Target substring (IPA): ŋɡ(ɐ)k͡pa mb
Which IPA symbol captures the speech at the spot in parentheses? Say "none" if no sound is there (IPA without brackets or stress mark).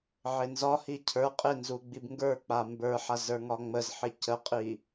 ə˞